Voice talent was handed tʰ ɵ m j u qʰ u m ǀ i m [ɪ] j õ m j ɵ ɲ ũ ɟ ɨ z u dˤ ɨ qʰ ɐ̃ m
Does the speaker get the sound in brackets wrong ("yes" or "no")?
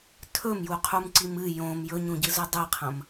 yes